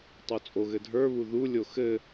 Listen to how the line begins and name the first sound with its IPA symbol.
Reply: tˤ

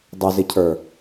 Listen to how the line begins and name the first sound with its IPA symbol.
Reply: dˤ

